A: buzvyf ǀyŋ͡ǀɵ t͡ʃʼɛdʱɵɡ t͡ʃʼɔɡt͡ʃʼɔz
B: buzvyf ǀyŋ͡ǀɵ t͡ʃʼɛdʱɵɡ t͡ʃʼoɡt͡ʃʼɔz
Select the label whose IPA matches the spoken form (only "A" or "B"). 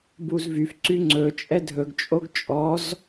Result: B